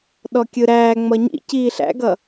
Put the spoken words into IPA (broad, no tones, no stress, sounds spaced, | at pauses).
ɗ ɔ kʲ ɯ ɾ æː ŋ͡m ʌ ɲ ḭ c iː ɬ æ̰ ɡ ʌ